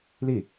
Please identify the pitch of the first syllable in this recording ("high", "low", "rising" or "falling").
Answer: falling